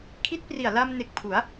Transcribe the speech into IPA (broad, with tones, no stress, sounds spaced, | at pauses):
kʰ i˦˥ t̚ p r i˨˩ a̯ l a˧ m n e˨˩ k̚ pʰ u˩˦ a̯